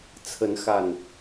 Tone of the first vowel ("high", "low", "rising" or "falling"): rising